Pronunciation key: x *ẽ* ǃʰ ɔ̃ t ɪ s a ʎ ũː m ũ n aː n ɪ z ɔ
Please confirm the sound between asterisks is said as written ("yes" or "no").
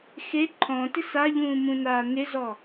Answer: no